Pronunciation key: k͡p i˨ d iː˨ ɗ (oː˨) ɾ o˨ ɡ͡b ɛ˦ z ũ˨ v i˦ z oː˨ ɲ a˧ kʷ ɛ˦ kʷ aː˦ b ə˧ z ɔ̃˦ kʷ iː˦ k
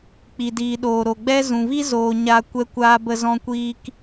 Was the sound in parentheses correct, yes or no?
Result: yes